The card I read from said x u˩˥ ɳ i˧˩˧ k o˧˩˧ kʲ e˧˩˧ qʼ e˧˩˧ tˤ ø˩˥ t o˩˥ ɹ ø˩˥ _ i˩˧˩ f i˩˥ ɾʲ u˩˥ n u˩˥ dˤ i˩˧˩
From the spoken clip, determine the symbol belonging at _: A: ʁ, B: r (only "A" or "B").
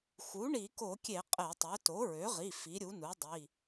A